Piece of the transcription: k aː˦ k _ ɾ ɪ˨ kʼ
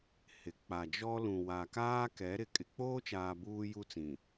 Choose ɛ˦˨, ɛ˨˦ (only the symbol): ɛ˨˦